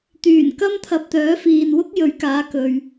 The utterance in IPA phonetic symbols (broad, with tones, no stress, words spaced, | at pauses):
t̪yː˨˩n kɐ˥mt̪ʰɐ˧p̚t̪œː˨˥ fiː˨nwʊ˥k̚jɵ˨˥ɥ kaː˨˥kɵ˨ɥ